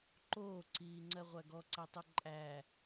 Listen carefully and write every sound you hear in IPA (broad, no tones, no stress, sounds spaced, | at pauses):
ǃ oː ǀ iː ŋ͡ǀ ɜ ʁʷ æ ɡ ɔ ǀ æ tˤ o ǃʼ æ